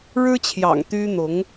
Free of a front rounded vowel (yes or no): no